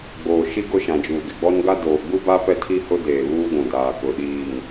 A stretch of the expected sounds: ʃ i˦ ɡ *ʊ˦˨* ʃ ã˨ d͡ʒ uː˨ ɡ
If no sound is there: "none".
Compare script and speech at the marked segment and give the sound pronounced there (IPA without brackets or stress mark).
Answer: ʊ˦˨